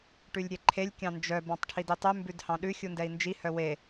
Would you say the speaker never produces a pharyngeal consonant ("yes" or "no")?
yes